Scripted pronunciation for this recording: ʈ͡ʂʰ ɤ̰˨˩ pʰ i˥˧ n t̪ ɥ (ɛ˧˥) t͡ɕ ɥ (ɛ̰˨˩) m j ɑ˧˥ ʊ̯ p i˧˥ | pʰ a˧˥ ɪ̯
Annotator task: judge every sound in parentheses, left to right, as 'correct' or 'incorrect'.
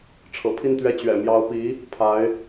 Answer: incorrect: ɛ˥˩, correct

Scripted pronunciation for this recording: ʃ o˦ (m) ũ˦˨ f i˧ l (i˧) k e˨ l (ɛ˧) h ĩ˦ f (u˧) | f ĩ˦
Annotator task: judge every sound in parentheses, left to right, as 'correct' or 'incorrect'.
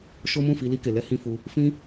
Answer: correct, correct, correct, correct

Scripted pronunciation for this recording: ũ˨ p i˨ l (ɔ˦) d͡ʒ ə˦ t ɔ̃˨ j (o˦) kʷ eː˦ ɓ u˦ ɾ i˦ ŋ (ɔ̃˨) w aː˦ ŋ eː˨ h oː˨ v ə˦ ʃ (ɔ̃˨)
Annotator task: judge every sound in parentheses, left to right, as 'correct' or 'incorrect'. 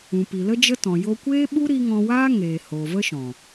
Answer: incorrect: ə˦, correct, incorrect: ɔ̃˧, correct

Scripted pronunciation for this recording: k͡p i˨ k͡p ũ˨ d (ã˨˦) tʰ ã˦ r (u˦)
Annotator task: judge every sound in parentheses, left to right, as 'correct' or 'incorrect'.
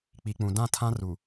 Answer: incorrect: ã˦˨, incorrect: u˨

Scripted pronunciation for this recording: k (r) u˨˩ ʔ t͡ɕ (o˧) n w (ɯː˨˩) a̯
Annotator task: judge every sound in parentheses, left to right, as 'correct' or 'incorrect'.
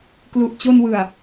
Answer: incorrect: l, correct, incorrect: ɯ˨˩

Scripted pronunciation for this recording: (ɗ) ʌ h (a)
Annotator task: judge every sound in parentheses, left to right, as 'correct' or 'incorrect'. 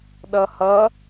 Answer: correct, incorrect: ʌ

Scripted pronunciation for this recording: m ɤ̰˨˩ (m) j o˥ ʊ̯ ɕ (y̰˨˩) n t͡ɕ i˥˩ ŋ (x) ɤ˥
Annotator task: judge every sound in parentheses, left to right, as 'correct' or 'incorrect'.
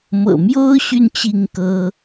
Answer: correct, incorrect: y˥˧, incorrect: k

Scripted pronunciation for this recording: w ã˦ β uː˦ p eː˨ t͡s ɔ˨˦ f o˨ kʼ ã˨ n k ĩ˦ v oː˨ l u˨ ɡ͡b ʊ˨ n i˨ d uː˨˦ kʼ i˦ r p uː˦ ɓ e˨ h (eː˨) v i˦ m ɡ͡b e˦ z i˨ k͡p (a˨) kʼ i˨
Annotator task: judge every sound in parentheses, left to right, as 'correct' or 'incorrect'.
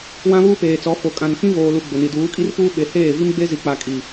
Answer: incorrect: eː˦˨, correct

